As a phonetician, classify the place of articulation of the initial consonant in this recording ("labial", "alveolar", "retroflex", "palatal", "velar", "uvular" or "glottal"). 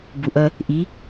labial